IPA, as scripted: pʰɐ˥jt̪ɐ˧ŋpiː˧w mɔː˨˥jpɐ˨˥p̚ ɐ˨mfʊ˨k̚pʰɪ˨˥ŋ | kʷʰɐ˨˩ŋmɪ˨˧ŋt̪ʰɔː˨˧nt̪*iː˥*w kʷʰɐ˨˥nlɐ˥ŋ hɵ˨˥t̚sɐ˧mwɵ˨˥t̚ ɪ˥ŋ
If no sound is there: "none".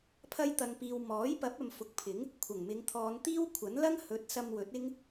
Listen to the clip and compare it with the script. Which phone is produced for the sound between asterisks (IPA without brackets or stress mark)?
iː˥